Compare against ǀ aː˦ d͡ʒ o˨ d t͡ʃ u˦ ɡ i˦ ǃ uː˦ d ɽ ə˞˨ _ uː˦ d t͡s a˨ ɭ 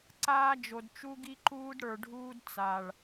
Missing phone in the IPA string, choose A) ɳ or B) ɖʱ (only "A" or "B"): B